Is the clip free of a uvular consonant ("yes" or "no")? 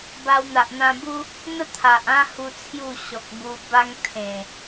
yes